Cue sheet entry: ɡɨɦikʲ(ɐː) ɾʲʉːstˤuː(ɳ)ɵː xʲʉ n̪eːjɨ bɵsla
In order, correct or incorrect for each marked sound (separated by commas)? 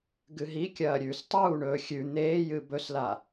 correct, correct